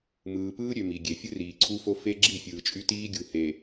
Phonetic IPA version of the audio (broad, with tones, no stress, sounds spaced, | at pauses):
m ɯː˨ p ɯː˦ ɾʲ ø˨ m i˨ ɡʲ e˨ fʲ ɯ˦ r iː˨ ǀʰ u˦ f o˦ f e˦ ɡ͡ǁ i˦˨ fʲ ɯː˨ t͡ʃʼ y˦ t iː˦ ɡʲ u˨ h e˨